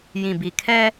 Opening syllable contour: low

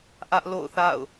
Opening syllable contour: high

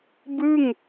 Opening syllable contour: falling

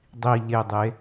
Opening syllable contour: low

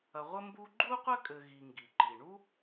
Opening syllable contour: low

